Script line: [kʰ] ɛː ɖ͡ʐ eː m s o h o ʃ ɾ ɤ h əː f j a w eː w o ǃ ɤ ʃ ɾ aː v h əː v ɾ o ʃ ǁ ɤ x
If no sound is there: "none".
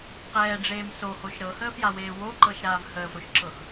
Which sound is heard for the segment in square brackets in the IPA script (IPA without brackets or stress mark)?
q